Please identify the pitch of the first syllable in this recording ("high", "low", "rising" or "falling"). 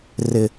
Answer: high